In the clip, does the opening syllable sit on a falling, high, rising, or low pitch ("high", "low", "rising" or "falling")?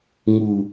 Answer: low